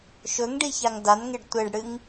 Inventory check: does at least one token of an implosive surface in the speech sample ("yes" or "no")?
no